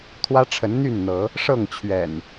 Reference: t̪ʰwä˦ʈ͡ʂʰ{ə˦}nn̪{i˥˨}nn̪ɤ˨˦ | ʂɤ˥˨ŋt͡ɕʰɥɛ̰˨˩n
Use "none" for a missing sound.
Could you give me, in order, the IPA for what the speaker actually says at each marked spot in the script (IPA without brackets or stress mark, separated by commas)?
ə˨˦, y˥˨